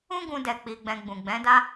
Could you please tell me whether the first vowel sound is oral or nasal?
nasal